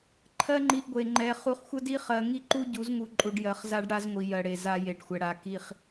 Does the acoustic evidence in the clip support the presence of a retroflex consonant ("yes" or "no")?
yes